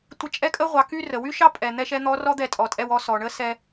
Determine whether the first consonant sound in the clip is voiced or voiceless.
voiceless